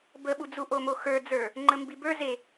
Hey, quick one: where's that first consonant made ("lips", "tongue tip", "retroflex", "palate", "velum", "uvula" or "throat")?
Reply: lips